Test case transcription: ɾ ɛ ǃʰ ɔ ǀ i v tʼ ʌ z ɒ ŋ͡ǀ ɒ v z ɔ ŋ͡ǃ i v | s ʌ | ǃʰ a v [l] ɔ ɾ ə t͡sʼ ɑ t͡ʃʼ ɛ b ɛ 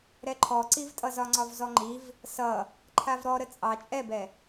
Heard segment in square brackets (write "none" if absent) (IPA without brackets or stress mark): ɾ